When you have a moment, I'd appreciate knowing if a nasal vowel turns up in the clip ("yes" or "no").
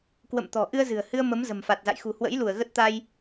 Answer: no